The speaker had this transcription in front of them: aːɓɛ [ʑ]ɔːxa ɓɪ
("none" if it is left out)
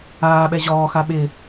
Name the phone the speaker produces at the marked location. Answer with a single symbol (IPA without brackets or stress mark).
ʑ